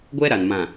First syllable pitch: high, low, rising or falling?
high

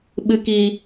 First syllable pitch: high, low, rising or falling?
low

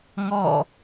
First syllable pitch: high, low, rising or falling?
falling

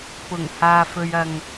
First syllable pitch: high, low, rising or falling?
low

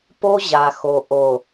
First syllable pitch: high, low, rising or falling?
high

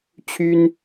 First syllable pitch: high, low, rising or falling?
high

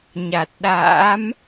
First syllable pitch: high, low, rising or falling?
low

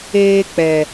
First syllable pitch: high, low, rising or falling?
high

